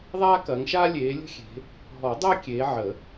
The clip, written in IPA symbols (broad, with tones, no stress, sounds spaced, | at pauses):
ðˤ aː˥ k ɐː˨˦ ŋ ʃ aː˥ lʲ eː˨˦ lʲ ə̤˥ xʲ e̤˨˦ | ɦ ɔ˨˩˦ dˤ əː˥ kʲ eː˨˦ ʕ ə˨˩˦